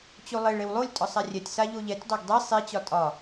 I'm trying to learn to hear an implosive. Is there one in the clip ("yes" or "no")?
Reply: no